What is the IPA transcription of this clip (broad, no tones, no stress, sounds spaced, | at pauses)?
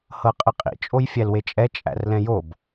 h ɤ qʼ ɘ qʼ ḭ t͡ʃʼ o j fʲ æ l w e t͡ʃʼ ɛ t͡ʃʼ æ̰ r l ɛ̃ j o b